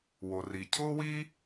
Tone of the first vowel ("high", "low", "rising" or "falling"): low